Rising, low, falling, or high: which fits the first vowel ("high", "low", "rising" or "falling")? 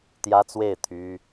high